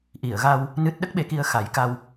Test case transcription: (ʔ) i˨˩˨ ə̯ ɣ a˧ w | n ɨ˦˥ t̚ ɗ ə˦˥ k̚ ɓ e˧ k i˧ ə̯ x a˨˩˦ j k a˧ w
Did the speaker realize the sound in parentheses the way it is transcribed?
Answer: yes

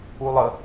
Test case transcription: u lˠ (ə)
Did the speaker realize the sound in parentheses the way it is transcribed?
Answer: yes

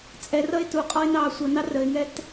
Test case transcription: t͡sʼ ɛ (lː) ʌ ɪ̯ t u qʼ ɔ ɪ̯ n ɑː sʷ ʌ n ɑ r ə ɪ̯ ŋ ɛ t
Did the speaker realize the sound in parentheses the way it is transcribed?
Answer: no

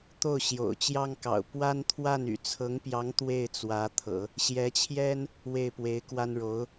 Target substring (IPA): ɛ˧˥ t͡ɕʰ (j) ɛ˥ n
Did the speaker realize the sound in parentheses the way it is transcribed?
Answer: yes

